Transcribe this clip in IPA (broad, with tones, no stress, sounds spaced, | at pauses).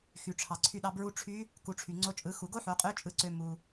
x y˩ ʈ͡ʂʰ ɑ˩ ǀʰ y˧ ɗ ɑ˧ b ɹ u˧ ʈ͡ʂʰ y˧˥ | k u˩˧ ʈ͡ʂʰ y˩ ŋ͡ǀ o˧ t͡ʃʼ ɯ˩˧ x u˩ ɡ o˥ ħ o˩˧ qʼ ø˧˥ t͡ʃʼ ɯ˧˥ ǀ ø˧ m u˩